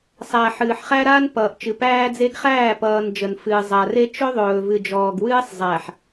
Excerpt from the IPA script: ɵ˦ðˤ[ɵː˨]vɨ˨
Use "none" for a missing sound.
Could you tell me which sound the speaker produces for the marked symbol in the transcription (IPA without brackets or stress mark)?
ɵː˨